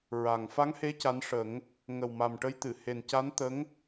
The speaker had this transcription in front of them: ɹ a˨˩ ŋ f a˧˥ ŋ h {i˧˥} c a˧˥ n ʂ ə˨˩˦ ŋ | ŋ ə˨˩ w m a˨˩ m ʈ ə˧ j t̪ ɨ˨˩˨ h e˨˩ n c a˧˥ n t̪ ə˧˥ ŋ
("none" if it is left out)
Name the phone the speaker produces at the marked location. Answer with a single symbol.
e˧˥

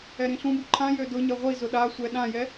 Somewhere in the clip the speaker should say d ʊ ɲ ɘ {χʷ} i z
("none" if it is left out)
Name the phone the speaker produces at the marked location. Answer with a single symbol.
ʁʷ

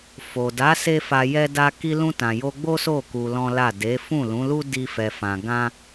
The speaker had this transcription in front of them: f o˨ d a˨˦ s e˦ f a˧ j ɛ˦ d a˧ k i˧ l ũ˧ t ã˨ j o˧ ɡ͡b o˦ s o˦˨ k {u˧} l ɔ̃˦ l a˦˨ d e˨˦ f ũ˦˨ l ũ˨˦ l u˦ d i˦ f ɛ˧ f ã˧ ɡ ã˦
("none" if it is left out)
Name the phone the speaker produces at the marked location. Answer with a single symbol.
u˧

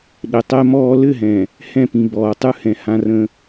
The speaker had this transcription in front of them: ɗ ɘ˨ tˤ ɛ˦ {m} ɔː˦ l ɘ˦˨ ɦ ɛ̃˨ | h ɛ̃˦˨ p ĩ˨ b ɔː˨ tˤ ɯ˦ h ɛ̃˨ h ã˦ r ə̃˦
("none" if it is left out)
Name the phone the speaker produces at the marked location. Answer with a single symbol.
m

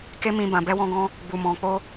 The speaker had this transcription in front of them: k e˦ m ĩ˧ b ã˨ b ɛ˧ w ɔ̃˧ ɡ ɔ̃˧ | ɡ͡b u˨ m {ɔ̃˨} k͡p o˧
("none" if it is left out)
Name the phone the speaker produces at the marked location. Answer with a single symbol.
ɔ̃˨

